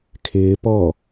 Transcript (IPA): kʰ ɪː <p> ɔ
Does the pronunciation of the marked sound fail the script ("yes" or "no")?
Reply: no